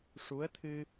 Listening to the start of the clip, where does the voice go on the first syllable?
rising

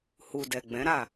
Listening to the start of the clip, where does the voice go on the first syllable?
low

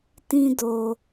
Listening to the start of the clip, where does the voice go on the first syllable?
high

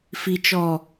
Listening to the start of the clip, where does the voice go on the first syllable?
low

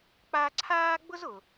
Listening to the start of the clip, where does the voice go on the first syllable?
high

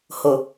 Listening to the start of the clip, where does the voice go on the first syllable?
low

